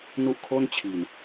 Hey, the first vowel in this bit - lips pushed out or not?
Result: yes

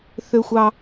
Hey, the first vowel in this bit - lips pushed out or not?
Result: yes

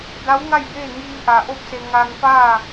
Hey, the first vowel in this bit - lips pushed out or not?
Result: no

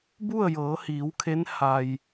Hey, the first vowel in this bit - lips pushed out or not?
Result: yes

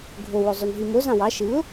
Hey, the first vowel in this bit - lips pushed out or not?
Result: yes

